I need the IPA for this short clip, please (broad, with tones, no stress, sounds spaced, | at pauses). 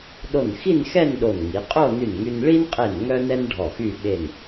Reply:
ɗ o˧˩ n x i˥˧ n x ɛ˥˧ n ɗ o˧˩ n ŋ i˩˧ qʼ o˥˧ n y˧˩ n ŋ y˧ n ɭ i˥ n qʼ e˧˩ n ŋ œ˥ n ɛ˥ n ɖʱ ɔ˧˩ x y˥˧ ɓ e˧˩ n